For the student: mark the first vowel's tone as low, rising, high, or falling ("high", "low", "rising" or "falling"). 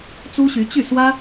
high